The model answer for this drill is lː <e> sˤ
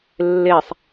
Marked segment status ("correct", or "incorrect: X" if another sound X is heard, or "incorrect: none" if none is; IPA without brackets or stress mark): correct